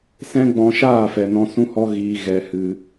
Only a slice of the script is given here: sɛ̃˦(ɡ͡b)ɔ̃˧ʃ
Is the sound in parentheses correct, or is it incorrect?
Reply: correct